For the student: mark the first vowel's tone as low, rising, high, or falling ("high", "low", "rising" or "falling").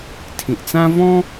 low